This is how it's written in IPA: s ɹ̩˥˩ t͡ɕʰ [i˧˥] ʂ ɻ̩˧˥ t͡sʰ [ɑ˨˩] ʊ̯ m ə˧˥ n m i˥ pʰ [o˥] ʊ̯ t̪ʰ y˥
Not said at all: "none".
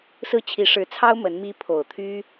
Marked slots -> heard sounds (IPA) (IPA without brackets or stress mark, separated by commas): i˧˥, ɑ˥, o˨˩